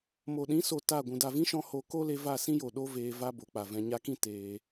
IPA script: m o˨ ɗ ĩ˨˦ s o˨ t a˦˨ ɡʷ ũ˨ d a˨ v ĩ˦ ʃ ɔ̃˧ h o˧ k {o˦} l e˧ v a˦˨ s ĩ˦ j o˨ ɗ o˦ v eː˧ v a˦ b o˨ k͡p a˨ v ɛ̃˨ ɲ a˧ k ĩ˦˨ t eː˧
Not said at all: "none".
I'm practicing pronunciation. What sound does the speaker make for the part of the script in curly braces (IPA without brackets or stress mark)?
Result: o˦